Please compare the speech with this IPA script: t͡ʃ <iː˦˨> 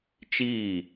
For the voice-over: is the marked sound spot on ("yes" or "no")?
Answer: yes